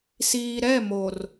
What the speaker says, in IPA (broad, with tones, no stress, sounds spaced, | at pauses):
s iː˨ ɾ ɛ˦˨ m o˨ r